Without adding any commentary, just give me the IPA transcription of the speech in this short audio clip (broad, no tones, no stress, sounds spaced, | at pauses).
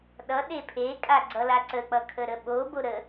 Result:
ɗ ʌ ɗ e pʰ e kʼ a ɡ͡ǀ ʌ l a ǀ ə k͡p ʌ kʰ ə ɾ ə ɓ o b o ɾ ə